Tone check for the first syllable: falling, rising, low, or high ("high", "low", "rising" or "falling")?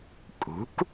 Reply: rising